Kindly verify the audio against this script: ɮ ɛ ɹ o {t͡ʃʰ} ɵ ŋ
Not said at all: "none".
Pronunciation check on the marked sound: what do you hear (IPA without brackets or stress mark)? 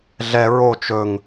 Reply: t͡ʃ